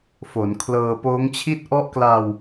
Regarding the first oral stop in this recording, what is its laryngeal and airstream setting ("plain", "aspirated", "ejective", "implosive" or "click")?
aspirated